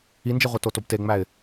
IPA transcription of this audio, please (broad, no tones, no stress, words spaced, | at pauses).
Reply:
ind͡ʒeʁʷi totobteŋ͡mæɪ̯